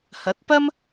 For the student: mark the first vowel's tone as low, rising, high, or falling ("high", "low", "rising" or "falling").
rising